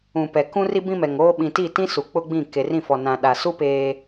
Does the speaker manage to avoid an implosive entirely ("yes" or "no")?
no